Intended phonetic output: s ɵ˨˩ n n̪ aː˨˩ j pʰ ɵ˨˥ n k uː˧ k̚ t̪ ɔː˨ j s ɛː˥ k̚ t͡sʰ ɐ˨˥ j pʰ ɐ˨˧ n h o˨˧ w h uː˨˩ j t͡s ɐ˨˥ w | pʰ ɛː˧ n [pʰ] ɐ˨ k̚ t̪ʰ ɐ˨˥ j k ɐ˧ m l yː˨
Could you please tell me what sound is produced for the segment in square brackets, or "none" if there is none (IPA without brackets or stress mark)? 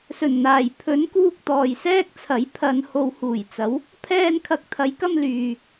kʰ